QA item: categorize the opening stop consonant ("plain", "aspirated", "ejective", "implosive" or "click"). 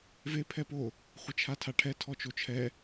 aspirated